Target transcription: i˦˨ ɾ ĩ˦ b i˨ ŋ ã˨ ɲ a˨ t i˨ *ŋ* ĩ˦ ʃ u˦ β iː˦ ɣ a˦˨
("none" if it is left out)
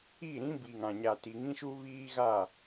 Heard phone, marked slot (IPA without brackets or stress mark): ŋ